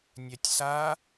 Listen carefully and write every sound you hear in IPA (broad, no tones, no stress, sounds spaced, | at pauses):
nʲ ɛ tʲ s a